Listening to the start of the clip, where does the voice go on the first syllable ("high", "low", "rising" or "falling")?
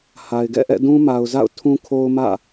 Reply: low